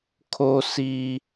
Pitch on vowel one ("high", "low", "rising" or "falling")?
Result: high